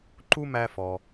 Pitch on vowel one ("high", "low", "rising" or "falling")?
high